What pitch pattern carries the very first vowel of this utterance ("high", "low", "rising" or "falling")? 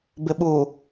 low